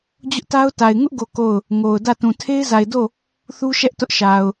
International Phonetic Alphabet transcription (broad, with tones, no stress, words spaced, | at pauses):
d͡ʑʊ˦ʔta˦ʊ̯ta˨ɪ̯ ŋʊ˦ʔɡo˨ ko˦˨ʊ̯ | ŋo˨ʊ̯ dä˦˨tũ˨ tʰe˦ɪ̯za˨ɪ̯do˦˨ | θu˦ʃɛ˦ʔ tʊ˦ʔʃa˨ʊ̯